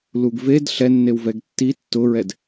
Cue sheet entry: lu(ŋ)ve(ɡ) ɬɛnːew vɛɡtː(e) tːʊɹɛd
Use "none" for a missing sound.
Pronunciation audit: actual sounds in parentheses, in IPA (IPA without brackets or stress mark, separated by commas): ɡ, d, i